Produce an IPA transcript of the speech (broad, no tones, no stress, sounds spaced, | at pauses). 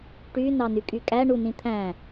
ʈ y n ɑ n y kʼ y kʼ æ ɳ u n ĩ t̪ʰ æ̃